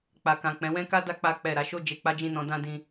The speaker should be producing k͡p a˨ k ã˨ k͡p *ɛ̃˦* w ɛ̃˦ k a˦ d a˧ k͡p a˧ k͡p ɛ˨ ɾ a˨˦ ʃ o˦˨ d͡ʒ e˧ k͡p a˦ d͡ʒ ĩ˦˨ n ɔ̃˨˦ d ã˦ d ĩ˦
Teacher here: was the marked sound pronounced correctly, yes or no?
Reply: no